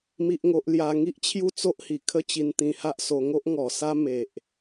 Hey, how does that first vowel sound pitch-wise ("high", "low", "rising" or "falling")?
high